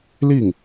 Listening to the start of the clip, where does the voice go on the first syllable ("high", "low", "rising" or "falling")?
falling